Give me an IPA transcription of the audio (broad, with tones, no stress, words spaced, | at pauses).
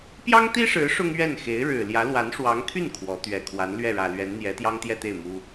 pjɑ˥ŋt̪i˥ʂɻ̩˧˥ ʂʊ˥ŋɥɛ˥˩nxe˧˥ɪ̯ ɻɻ̩˨˩ljä˧˥ lwa˧˥nʂwɑ˧˥ŋt̪ʰy˥˩n kʰwɔ˧˥ t̪ɥɛ˨˩kʰwa˧˥n lɥɛ˥˩ɻä˨˩lɥɛ˧˥n n̪jɛ˧˥t̪jɑ˥ŋt̪jɛ˥˧t̪e˥˩ɪ̯ mu˥